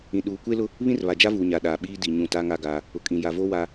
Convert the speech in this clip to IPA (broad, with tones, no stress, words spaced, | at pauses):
ĩ˨ɗuː˨kʷe˦lʊ˦ | βĩ˦rβa˨d͡ʒa˦vuː˨ ɲa˨ɗaː˨ɓiː˦ di˨ ɲũ˦˨ta˦ŋa˦ ɡaː˦ | ʊ˨kʼĩ˨ ja˨vo˦ wa˦